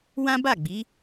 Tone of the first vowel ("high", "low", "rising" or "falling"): high